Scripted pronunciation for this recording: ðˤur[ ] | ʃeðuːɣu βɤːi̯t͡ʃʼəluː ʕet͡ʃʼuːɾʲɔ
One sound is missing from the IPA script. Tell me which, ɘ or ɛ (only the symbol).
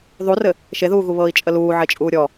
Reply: ɘ